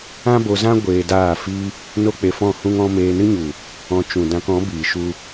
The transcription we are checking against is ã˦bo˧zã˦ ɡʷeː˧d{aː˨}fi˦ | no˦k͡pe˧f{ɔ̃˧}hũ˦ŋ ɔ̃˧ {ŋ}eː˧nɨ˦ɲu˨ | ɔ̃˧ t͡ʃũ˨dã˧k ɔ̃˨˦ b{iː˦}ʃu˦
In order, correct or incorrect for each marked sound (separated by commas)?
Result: incorrect, incorrect, incorrect, incorrect